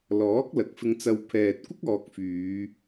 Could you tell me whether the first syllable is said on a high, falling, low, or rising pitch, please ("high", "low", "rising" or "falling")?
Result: rising